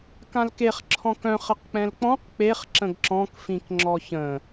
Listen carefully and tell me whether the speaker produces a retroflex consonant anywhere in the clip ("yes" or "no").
no